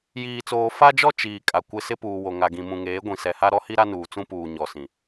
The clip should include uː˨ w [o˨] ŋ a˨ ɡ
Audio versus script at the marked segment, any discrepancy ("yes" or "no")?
no